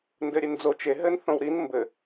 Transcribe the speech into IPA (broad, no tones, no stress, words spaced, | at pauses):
ndɘɾʲend͡zo t͡ʃe ɦɘn θõwɾin mbɘ